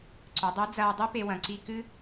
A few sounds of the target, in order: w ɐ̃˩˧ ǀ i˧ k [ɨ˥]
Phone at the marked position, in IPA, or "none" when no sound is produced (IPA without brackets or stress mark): ɨ˥